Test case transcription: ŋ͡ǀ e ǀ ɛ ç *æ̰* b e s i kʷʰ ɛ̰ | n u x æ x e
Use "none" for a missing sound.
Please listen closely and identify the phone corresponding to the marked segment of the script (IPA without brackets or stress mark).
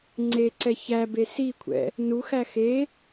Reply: æ